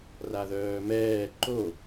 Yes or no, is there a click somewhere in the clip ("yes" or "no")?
yes